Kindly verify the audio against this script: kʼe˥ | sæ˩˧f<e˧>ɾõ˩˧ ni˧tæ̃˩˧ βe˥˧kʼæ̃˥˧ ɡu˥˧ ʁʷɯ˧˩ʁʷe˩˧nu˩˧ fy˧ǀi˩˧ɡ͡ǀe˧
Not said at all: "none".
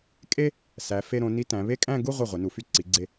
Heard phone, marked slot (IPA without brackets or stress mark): e˧